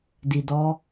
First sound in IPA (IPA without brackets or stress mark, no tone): d